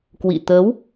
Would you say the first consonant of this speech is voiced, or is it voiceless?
voiceless